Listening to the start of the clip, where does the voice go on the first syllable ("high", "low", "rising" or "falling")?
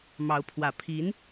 rising